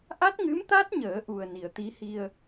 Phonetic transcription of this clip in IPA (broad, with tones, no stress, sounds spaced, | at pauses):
ʔ a˦˥ t̚ ŋ ɨ˧˥ m t̪ a˦˥ t̚ ɲ əː˨˩˦ ʔ u˨˩ ə̯ n i˨˩˨ ə̯ t̪ i˧˥ h i˧ ə̯